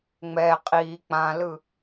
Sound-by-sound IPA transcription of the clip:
ŋ͡m ɛ qʼ i k͡p ã l ɯ

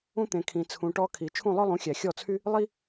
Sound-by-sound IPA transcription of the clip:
ũ˧ t̪ ẽ˩ kʰ ĩ˩ t͡sʰ ũ˩ ʈ ɔ˧ kʰ i˩ t͡ʃʰ ũ˥˩ lˠ œ˥ lˠ ũ˩˥ xʲ æ˩ xʲ ɔ˥˩ t͡sʰ y˥ | lˠ i˥

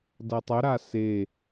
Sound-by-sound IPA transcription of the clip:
d ʌ tˤ œ ɾ a s e

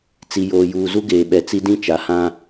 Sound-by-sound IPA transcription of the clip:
t͡s i˨ j oː˨ j uː˨ z u˦ ɡ eː˨ ɓ ɛ˨ t͡s i˦ d ĩ˦ t͡ʃ a˨ h ã˦

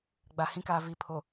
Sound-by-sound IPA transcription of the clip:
ɡ͡b a˨ h ĩ˦ k aː˨ v i˨ pʰ o˨

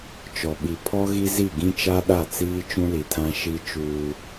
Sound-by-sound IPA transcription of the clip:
t͡ʃ ɔ˨ ɓ i˨ pʰ ɔ˦ ɣ i˦ z i˦˨ ɡ ĩ˦ t͡ʃ a˦ ɗ a˦˨ t͡s iː˦ t͡ʃ ũ˦ l i˨ tʰ ã˦ ʃ i˦ t͡ʃ uː˦

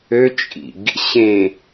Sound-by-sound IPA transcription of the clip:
ø t͡ʃʼ ḭ ɡ | ɕ ẽ

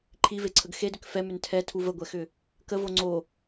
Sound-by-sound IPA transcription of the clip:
ǃʰ i v e ǀʰ ə ɡ x e d ʏ k f ɛ m ʏ n tʰ ɛ tʰ u v ə ɡʷ ɛ x ʏ | k ə v o ŋ͡ǀ o

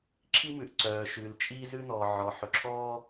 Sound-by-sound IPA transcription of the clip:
ǁʰ i˥ m ʉ˧ ʔ ǀ œː˧ ʃ ʉː˧ l t͡ʃʼ iː˥ z ʉ˥ n ɔː˧ ʕ ɔ˧ ħ ɵ˧ ǁʰ ɔː˥

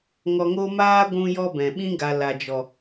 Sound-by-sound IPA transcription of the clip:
ŋ ɔ˧ ŋ o˦ m aː˦ ɡʷ ũ˦ j ɔ˦ b ɛ̃˨ ɓ ĩ˦ ɡ a˨ l a˨ d͡ʒ ɔ˨

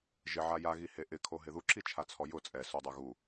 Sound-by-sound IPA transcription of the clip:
ʒ ɪ ʕ a j a ɣ i h e ʔ ɪ kʰ o ɦ ɪ ð u ǁ i t͡ʃʰ a t͡sʰ ɔ j ʊ t͡sʼ ɛ s u dˤ ʊ ɣ u

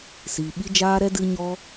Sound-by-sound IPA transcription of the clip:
s iː˨ ɓ i˦ d͡ʒ aː˦ ɾ ɛ˦ d ɨ˦ ɲ ɔ˦

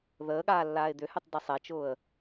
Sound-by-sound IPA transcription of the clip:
ð əː ɠ aː lː aː ɪ̯ d̪ ʏ h y tˤ d ɐ sˤ e t͡ʃ ʊː ə̯

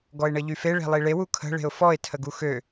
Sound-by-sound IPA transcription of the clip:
ɡ ɔ ɪ̯ ɳ ə ʎ y f e ɭ e̤ lˠ i ɭ e w u kʰ ə̤ ɭ e̤ ʊ̯ f ɔ ɪ̯ tʰ ə ɡ u x ø

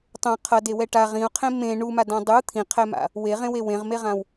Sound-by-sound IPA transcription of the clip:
tˤ õ qʰ ʌ d e w ɛ ʈ a ʁ ĩ u̯ qʰ ẽ m ẽ ɳ u m a d ã dˤ u t̪ʰ ĩ qʰ ɛ m a̰ | w e ʁ ẽ w e w ẽ ʁ m e ʁ ã w

